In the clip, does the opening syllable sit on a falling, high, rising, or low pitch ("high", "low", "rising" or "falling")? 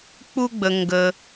high